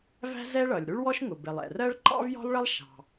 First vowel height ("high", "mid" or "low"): low